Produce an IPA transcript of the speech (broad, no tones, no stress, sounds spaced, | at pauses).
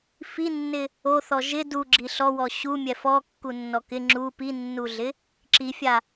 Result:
f i nː ɪ | o θ ɔ ʒ ɪ d u ɡ͡ǁ i ɬ ɔ w ɔ ɕ u mʲ ɛ f ɔ kː u nː ɔ k ɪ ŋ͡ǁ u p i nː u ɮ ɪ | ǁ i fʲ a